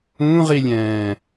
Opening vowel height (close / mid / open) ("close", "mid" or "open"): close